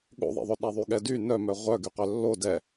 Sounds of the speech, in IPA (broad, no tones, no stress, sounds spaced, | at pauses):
ɠ o̰ ðˤ ḛ ðˤ ɵ ɗ ɛ ðˤ y ɠ ɛ d y n œ m œ ʁʷ œ ɡ y q œ lː o d ɛ